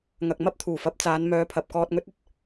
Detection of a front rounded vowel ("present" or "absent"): present